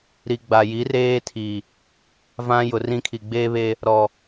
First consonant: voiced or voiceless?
voiced